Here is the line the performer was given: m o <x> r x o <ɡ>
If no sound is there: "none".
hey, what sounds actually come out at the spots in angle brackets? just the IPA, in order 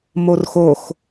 none, x

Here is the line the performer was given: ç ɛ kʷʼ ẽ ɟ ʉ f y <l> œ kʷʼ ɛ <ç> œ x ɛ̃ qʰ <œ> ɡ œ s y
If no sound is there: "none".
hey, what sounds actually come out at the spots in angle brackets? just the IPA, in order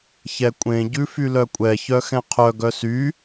l, ç, œ

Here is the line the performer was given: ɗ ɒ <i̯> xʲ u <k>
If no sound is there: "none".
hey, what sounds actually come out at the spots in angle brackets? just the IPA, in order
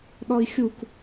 i̯, k

